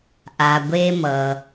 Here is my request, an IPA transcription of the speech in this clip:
ʔ a˩ ɡʷ e˧ m ʌ˩

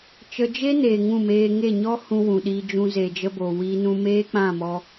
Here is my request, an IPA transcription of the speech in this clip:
t͡ʃ ə˧ d͡ʒ e˦ n eː˨ ŋ ũ˦˨ m eː˧ ŋ e˦˨ ɲ ɔ˦ h ũ˧ w ũ˨ ɗ iː˧ d͡ʒ ũ˧ z eː˨ d͡ʒ ə˧ b oː˨ w iː˧ n ũ˧ m eː˦ k͡p ã˦˨ m ɔ˧

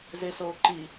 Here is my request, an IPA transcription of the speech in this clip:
z e s oː ǃ i

